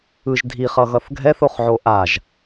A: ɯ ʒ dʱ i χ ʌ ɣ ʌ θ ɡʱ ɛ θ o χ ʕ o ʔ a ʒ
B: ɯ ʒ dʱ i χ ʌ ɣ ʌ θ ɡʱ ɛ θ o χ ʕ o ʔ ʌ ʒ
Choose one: A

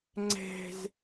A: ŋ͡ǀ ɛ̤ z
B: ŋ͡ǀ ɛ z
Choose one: A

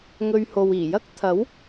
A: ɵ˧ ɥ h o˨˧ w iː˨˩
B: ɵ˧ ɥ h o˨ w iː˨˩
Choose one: B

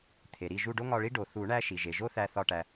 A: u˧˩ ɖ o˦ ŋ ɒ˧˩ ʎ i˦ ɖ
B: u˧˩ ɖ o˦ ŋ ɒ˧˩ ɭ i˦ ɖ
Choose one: B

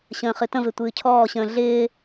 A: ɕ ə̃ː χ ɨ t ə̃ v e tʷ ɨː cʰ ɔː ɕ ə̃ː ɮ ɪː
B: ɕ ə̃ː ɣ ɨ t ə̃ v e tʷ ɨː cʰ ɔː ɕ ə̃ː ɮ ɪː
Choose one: A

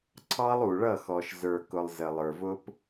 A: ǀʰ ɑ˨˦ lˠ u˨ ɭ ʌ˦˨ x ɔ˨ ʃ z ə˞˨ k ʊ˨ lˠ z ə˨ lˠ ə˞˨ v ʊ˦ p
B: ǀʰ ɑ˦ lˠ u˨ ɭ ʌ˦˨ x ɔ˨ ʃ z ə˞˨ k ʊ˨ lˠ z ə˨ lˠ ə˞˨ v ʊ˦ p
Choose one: B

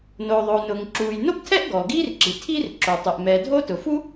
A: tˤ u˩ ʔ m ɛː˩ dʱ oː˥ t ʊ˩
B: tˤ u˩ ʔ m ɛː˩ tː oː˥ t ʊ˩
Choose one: A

